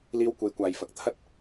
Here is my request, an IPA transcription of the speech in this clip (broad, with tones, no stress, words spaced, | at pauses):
liː˥wkʷe˧jkʷaː˨˧jfɐ˨˥k̚ t̪ʰɐ˥t̚